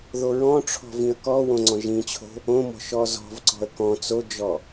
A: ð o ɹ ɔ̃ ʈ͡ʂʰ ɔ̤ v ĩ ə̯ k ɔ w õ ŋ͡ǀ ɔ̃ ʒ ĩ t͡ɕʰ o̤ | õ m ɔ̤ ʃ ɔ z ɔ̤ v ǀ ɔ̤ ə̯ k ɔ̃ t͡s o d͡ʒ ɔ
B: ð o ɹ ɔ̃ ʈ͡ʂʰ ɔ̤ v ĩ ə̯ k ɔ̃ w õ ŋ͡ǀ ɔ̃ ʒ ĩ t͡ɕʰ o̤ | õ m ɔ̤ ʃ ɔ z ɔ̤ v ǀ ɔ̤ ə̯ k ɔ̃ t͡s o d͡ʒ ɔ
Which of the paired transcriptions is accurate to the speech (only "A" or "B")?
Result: A